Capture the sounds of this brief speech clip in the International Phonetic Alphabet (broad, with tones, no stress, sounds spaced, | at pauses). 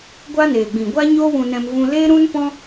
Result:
ɡʷ a˦ n eː˨ ɡ͡b ĩ˨ ɡʷ a˦ ɲ oː˦ w ũ˧ n ɛ̃˧ m v ũ˧ l e˦ ɾ ũ˦ n p ɔ̃˦